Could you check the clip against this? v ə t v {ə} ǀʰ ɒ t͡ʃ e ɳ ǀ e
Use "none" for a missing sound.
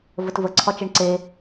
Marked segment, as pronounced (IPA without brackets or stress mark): ə